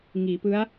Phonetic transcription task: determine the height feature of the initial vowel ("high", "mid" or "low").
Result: high